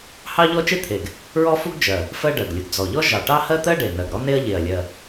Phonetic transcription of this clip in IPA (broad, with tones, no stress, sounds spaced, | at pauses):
h ɑ˥ ʎ ɔ˥ t͡ʃ e˥ t̪ʰ e˨˩ ɡ | ɹ ɔ˥ f u˥ ɡ d͡ʒ ɜ˨˩ | f ɜ˥ ɖ ɜ˨˩ ɡ lʲ ʊ˨˩ ɡ d͡z ɔ˨˩ ʎ ɔ˥ ʒ ɑ˨˩ ʈ ɑ˥ h ɜ˥ t̪ ɜ˥ ɖ e˨˩ n ɜ˨˩ ɡ ɾ ɔ˥ n e˥ ɐ̯ ʎ e˨˩ ɐ̯ lʲ ɜ˨˩